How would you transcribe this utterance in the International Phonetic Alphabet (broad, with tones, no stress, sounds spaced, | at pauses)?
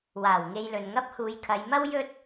w aː˨˩ w ŋ e˧ j l ɵ˨ n ŋ ɐ˥ p̚ h uː˨˧ j kʰ ɐ˨˧ j m ɐ˥ w j ɵ˥ t̚